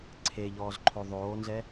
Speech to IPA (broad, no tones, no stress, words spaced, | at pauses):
ǀʰeʎɔːz ǃʰoðˤoːnzɛ